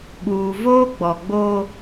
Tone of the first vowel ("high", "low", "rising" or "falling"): low